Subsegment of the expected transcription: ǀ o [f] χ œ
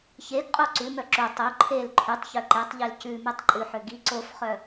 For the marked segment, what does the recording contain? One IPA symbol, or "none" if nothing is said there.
f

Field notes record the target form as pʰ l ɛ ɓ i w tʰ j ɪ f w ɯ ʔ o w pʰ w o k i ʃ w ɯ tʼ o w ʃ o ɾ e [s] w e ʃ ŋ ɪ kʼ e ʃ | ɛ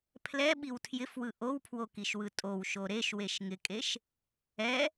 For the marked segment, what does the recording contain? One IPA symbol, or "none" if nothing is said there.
ʃ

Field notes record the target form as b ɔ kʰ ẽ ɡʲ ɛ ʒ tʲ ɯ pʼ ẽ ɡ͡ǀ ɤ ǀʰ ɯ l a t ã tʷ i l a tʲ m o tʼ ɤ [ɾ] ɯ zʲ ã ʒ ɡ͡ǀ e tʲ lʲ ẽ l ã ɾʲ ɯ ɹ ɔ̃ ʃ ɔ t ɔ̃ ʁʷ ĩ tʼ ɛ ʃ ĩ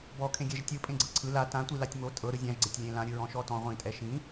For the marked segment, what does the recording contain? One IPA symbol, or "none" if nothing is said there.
ɾ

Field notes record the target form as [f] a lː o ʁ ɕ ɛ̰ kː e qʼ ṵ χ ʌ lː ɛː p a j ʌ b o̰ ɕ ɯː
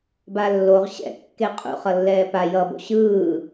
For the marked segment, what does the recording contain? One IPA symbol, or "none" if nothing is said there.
b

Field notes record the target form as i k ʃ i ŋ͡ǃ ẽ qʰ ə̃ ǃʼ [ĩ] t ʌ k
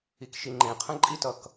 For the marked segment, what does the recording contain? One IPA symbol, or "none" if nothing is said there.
i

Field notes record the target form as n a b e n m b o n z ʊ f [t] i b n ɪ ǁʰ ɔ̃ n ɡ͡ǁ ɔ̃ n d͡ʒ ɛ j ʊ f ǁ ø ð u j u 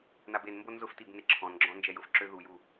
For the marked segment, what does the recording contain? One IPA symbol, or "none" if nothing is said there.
t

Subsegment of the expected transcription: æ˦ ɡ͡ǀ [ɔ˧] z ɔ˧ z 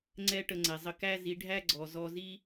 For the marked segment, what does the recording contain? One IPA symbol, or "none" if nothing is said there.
ɔ˨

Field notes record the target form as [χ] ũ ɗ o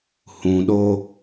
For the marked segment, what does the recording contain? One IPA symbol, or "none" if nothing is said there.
h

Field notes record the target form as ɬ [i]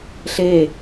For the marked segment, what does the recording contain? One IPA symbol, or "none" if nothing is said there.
e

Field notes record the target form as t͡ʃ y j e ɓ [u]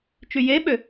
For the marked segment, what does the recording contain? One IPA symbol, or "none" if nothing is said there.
ø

